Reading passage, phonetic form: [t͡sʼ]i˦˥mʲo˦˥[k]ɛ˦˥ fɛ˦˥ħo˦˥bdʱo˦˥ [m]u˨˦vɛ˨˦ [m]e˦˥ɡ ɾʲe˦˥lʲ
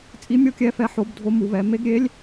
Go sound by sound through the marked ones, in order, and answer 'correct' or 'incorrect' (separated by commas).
correct, incorrect, correct, correct